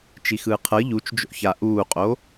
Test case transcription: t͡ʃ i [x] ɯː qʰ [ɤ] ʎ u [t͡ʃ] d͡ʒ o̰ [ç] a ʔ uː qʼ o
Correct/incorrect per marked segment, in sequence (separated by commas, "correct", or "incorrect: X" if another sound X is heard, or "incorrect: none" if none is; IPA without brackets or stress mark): correct, correct, correct, correct